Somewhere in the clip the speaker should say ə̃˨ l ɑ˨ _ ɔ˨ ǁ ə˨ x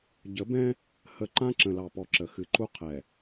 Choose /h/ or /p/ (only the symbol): p